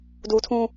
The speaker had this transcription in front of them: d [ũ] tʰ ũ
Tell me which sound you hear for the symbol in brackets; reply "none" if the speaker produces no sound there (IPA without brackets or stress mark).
u